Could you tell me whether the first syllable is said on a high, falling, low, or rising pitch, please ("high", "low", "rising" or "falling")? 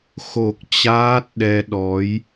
low